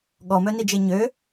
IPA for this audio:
ɠɔmœnid͡ʒe ɲø

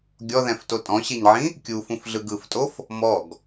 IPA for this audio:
ɡʲɔðɛ̃fto tʼɔ̃ɕeɲʕĩ | kʲufũfɮɯɡ ɯftʼof | mɔɡ

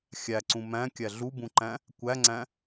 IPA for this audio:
xʲæǀũ mæ̃kʲæ ɮubũǃæ̃ | kʷæŋ͡ǀæ̃

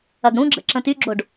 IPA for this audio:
ɐɡɽũɡ͡ǁə̰ ǁə̃tyɡ͡ǁoɖ

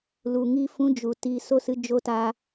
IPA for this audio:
lu˨ŋi˧ fũ˧d͡ʒu˨ ti˧ so˧sɨ˧ d͡ʒo˧ta˧

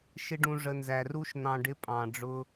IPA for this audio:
ʃɪ˦ɖũ˧ʐə˧ nzæ˨ru˦ʃ n̪ɑ̃˧ɖɪ˦pʼɑ̃˨ ɖ͡ʐʊ˦

